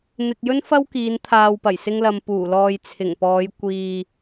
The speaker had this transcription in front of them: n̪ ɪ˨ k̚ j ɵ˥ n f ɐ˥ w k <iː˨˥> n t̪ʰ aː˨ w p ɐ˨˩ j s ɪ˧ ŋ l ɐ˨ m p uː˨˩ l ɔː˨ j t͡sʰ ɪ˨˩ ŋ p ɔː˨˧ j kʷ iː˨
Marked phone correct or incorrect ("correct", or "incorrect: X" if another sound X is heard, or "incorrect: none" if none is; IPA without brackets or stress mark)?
incorrect: iː˨˧